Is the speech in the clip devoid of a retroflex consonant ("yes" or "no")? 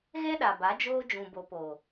yes